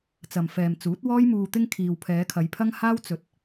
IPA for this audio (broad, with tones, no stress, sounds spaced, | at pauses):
t͡s ɐ˨ m f ɛː˨ m t͡s uː˨˥ t̚ w ɔː˥ j m uː˧ t̪ ɪ˥ ŋ kʰ iː˨ w pʰ ɛː˨˧ kʰ ɐ˨˧ j pʰ ɐ˥ ŋ h aː˥ w t͡s ɵ˨˥ t̚